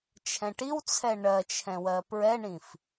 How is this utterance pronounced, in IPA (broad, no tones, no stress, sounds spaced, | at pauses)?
t͡ʃʰ ɛ̃ ʈ i w t͡sʰ ɛ ɳ ɜ t͡ʃʰ ɛ̃ w ɜ p ɹ ɛ ɳ ĩ f